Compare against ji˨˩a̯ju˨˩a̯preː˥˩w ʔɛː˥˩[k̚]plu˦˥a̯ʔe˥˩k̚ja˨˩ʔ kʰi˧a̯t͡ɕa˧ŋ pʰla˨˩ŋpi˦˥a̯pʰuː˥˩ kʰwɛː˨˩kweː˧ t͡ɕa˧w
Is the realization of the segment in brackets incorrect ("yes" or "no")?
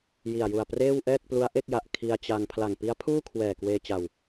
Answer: no